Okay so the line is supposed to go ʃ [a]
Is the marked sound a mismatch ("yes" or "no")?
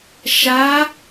no